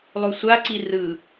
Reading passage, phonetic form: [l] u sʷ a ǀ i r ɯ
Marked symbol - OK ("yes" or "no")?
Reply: no